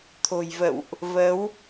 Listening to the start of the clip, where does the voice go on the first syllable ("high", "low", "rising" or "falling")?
low